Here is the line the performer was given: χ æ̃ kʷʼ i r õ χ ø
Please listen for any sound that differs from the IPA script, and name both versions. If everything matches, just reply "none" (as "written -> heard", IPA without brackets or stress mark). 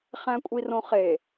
ø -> e